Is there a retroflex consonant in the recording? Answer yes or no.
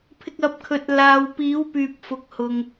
no